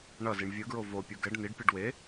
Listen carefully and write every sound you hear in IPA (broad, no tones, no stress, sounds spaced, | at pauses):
ɳ ʌ z i ɳ vʲ ɯ ɡ ɹ o v o pʲ u ɡ ɛ ɖ n i ɖ pʲ ɯ ɖ w e